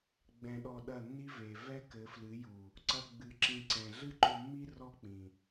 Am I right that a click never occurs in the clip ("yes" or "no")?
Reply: no